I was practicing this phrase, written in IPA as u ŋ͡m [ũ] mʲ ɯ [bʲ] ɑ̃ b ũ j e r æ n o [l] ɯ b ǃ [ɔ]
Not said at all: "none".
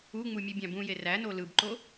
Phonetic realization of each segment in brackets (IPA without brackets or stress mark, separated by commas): u, bʲ, l, o